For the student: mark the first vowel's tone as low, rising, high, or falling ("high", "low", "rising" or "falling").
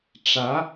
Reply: rising